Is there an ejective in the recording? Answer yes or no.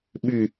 no